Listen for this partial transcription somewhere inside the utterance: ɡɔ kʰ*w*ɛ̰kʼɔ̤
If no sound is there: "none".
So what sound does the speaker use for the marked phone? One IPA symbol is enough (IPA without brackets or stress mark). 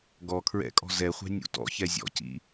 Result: ɹ